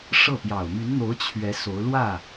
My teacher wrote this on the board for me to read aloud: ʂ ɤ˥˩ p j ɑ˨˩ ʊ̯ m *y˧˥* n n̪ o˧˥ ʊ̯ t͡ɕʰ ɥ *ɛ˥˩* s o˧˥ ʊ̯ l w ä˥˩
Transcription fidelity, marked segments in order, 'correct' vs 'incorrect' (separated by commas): correct, incorrect